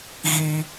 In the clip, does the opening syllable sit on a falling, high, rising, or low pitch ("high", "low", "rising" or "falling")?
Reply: high